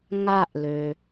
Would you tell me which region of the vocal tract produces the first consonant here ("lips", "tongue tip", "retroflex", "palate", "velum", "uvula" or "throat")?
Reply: velum